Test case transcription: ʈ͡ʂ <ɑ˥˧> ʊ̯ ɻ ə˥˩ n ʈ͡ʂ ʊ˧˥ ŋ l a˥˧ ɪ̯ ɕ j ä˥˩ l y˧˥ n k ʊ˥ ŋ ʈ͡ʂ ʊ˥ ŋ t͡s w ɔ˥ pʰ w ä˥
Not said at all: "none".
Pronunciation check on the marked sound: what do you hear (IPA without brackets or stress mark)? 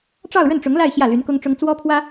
ɑ˥˧